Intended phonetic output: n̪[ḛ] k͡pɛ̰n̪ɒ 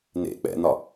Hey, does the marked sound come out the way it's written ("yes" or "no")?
yes